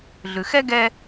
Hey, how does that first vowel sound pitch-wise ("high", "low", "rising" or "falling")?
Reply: low